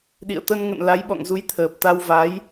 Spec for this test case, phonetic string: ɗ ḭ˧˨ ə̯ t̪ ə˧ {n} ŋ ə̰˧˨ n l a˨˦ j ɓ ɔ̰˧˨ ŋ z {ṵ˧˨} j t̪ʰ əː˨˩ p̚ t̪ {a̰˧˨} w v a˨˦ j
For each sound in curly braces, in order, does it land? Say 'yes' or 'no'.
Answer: yes, no, no

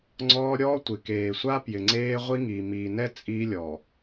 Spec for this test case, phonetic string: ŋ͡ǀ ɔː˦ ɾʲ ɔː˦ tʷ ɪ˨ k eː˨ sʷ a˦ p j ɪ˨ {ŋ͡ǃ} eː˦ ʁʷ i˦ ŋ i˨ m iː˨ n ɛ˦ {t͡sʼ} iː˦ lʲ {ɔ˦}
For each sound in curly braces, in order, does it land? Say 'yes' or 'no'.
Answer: no, yes, no

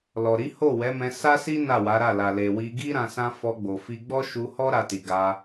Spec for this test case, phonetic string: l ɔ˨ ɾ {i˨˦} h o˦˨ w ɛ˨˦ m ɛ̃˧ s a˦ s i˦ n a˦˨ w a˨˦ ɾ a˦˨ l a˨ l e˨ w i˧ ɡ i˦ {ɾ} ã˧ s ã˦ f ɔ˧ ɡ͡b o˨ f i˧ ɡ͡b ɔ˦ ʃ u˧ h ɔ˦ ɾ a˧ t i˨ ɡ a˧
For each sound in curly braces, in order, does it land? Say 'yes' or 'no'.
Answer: yes, yes

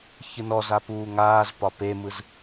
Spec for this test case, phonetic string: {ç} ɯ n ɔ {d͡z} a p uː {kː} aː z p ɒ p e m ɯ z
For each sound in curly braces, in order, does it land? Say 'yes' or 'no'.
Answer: yes, no, no

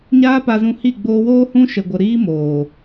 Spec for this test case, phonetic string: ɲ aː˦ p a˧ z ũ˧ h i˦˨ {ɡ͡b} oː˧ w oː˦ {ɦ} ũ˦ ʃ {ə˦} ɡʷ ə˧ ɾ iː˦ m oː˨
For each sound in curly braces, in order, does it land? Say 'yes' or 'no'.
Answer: yes, no, no

